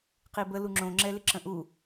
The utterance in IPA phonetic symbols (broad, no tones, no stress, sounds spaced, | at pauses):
q i b ə l u ŋ͡ǁ õ ŋ͡ǁ ɛ l ɪ ǁ ə̃ ʔ u